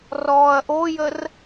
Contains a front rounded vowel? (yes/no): no